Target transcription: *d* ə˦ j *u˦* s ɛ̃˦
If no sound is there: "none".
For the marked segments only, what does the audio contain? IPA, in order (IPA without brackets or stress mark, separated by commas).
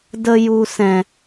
d, u˦